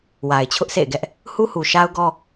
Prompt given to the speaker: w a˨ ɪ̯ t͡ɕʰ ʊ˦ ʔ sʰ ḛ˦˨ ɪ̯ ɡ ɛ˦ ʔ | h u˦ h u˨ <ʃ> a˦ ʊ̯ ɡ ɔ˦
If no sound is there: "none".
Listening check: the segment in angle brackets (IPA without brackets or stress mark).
ʃ